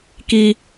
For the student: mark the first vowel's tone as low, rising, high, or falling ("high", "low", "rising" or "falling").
high